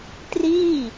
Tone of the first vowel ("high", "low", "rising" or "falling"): falling